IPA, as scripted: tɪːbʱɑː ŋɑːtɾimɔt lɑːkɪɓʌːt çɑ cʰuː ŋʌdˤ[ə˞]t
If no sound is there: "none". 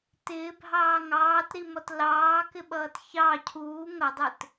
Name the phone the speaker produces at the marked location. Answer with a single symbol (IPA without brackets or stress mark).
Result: ə˞